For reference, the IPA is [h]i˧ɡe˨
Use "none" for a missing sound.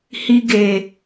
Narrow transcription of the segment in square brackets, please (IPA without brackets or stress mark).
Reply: h